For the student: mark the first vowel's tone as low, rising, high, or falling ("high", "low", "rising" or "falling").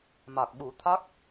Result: low